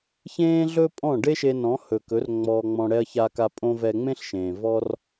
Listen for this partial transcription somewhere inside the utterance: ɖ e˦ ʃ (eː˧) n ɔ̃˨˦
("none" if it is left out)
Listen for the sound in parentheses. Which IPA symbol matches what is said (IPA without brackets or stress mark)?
e˧